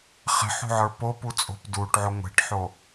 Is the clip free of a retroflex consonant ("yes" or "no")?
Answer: no